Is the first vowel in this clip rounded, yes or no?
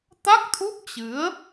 no